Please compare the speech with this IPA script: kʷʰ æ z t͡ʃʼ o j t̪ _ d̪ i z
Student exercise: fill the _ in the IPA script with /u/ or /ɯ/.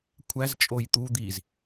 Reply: u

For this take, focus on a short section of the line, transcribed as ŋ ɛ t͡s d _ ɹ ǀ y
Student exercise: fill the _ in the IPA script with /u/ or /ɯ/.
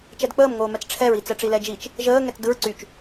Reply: ɯ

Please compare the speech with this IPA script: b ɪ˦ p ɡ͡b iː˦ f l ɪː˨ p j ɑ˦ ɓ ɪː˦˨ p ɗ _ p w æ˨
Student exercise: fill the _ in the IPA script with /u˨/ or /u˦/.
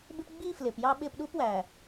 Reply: u˦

